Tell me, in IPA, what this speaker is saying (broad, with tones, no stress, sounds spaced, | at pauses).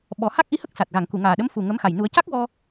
ɓ ɔ˨˩˦ h a˦˥ k̚ ʔ i˧˥ h ə˦˥ k̚ s a˨˩ t̚ ɣ a˨˩˨ ŋ k u˨˩˨ ŋ aː˨˩ ɗ ə˧˥ m f u˨˩ ŋ ə˧˥ m x a˨˩ j n u˨˩˦ ə̯ c a˦˥ k̚ w ɔ˧